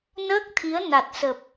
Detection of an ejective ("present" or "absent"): absent